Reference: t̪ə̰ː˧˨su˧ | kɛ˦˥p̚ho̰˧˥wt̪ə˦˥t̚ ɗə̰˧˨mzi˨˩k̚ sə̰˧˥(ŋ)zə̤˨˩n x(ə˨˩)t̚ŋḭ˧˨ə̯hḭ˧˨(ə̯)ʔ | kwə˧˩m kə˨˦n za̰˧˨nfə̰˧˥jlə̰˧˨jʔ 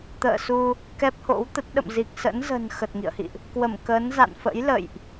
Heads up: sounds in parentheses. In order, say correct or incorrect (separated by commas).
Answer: incorrect, correct, incorrect